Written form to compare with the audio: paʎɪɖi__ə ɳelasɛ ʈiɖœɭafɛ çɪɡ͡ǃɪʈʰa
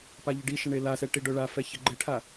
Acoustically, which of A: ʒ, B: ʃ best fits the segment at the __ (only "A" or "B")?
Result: B